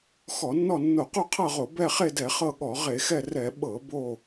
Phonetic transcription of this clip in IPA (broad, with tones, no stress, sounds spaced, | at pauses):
x ɔ˧˩˧ nː ɔ˦˨ nː o˧˩˧ q o˦˨ qʰ ɤ˦˨ ʁ o˧˩˧ b ɛ˦˨ χ e˦˨ d ɛ˧˩˧ χ ɤ˦˨ ɠ ɔ˧˩˧ ʁ e˧˩˧ x ɛ˦˨ r ɛ˧˩˧ ɓ ɤ˧˩˧ b o˦˨